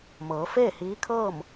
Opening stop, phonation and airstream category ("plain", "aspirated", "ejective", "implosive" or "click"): aspirated